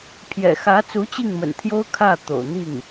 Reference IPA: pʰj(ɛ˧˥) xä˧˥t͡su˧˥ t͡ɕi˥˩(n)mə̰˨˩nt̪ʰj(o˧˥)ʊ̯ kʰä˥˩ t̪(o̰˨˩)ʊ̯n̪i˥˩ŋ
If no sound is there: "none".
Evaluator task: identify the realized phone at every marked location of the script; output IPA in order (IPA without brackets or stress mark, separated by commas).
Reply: ɛ̰˨˩, ŋ, o˥, o̰˨˩